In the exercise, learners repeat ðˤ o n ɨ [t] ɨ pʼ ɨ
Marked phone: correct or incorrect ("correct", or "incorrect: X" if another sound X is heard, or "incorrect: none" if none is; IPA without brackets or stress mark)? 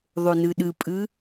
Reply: incorrect: ɗ